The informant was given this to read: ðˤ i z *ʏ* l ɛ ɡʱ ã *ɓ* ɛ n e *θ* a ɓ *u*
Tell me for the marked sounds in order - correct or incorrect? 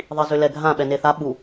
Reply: correct, correct, correct, correct

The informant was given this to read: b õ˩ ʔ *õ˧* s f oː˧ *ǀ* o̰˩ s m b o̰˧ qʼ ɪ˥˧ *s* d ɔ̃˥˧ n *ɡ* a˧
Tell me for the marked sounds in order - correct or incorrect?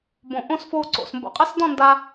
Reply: incorrect: õ˥˧, correct, correct, incorrect: d

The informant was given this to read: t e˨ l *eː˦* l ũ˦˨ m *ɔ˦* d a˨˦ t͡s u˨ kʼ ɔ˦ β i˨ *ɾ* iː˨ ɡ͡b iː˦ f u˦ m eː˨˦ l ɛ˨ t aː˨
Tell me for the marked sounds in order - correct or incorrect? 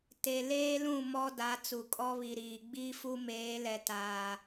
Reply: correct, correct, correct

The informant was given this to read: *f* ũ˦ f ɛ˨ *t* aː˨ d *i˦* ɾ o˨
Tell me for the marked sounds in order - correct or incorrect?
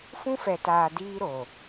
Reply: correct, correct, incorrect: iː˦

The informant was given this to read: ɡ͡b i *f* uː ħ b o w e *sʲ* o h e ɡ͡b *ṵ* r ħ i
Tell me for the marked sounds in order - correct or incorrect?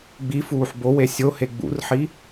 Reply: correct, correct, correct

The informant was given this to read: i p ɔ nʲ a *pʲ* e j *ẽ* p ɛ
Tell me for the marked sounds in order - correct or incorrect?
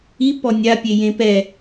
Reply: correct, correct

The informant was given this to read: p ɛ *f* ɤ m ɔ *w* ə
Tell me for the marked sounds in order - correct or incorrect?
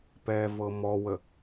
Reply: incorrect: v, correct

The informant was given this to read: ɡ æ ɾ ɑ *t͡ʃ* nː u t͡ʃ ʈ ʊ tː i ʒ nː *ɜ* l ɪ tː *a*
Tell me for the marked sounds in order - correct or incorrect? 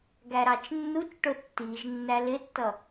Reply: correct, incorrect: æ, incorrect: ʌ

